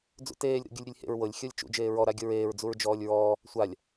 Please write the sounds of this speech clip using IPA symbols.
d͡z ṵ t eː lʲ ɾ ṵ ɡʲ u lʲ ɾʲ e lʲ h ḛ ɹ w ɤ lʲ xʲ ɤ lʲ t͡ʃ ṵ d͡ʒ eː ɹ ɔ ɾ a ɡʲ ɤ ɹ eː ɹ d͡z u ɹ d͡ʒ ɔː lʲ ɹ ɔː | sʷ a lʲ

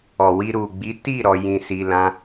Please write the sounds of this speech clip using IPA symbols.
ɔ˨ w i˧ ɾ u˨ ɡ͡b i˨˦ t i˦˨ ɾ ɔ˧ j ĩ˧ s i˧ l ã˦

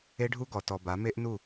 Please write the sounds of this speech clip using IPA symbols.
e˦ ɖʱ u˦ ɡ ɔ˨ t ɔ˨ b a˨˦ m e˦ ʔ n u˦˨

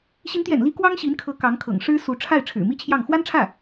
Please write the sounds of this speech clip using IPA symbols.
ɕ i˧˥ n t̪ j ɛ̰˨˩ n l i˧˥ k w ɑ˥ ŋ ɕ i˧˥ n kʰ ɤ˧˥ k ɑ˧˥ ŋ kʰ ɤ̰˨˩ ŋ ʂ ɻ̩˥ s u˧˥ ʈ͡ʂʰ a˥˩ ɪ̯ ʈ͡ʂʰ ɻ̩˨˩ m i˥ t͡ɕʰ j ɑ˥˩ ŋ x w a˥ n ʈ͡ʂʰ ä˥˩

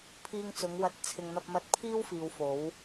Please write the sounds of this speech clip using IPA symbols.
pʰ iː˧ ŋ t͡s ʊ˨˧ ŋ w ɐ˨˥ t̚ t͡sʰ ɪ˨ ŋ n̪ ɐ˧ p̚ m ɐ˧ t̚ pʰ iː˥ w f iː˨ w f o˨˧ w

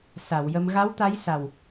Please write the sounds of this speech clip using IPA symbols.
s a˨˩˨ w j ə˧ m ɣ a˧˥ w t̪ a˧˥ j s a˨˩ w

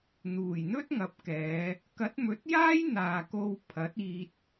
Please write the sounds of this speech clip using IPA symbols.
n̪ uː˨˩ j n̪ ɵ˥ t̚ ŋ ɐ˨˥ p̚ k ɛː˨˧ | k ɐ˨˥ t̚ m ɵ˨˥ t̚ j aː˥ j n̪ aː˨ k o˧ w pʰ ɐ˨˥ t̚ iː˧ t̚

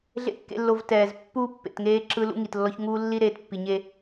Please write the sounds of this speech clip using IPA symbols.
ɮ ḛ˨˦ kː ḛ˨ lː o˨ v t ɛː˨ z pː uː˦ pː ḛ˨ t ŋ eː˦ ǁ ɯ˦ l ṵ˦ ŋ i˨ t lː ɔ˦ ç ŋ uː˦ lː i˦ ɾ eː˨ t pː i˨ ɲ e˦

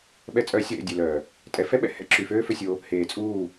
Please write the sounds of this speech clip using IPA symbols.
ɓ ɛ˧ t͡sʼ œ˨˦ sʲ o˨ ɾ ḛ˦˨ dʲ ø˨ l œː˨ | tʼ ɛ˧ f ɛ˦ ɓ ɛ̰˨ h ɛ̰˦ ǁ y˨ f øː˦ f ø˧ sʲ o˧ | h eː˨ t͡sʼ uː˦˨

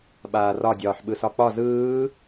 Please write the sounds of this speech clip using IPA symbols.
ɓ aː r ɒ dʲ ɒː ħ ɓ ɯ s ɒ k͡p ɒ z ɯː

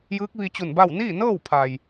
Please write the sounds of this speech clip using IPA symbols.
j ɯː˧˥ k̚ ʋ i˧ t͡ɕ u˧˩ n b a˥˨ w n iː˥˨ n ɤː˥˨ w pʰ a˩ j

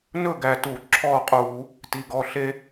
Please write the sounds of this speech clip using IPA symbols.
n ɵ˥˨ ɡ æ˧˩ t u˧˩˧ ǁʰ ɔ˥˨ qʼ u˧˩˧ | t i˩˧˩ ɡ ɔ˩˧˩ ɬ e˦

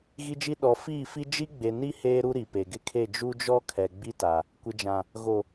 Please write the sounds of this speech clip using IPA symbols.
ɣ i˦ d͡ʒ i˦ ɗ ɔ˨ f iː˦˨ f i˦ d͡ʒ i˦ ɡ͡b e˨ n i˦ h eː˦ ɾ u˦ ɾ i˨ p e˨ ɡ ɪ˦ kʰ e˦˨ d͡ʒ u˦ d͡ʒ ɔ˦ kʰ ɛ˨ ɡ͡b i˦ t a˨ | kʷ ɪ˨ d͡ʒ ã˨ | ɣ o˨

